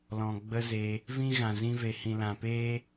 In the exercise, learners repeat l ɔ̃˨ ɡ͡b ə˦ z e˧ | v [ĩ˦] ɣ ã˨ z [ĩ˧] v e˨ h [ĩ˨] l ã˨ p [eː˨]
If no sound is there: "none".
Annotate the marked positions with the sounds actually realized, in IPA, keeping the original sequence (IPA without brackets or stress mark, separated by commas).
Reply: ĩ˦, ĩ˧, ĩ˨, eː˦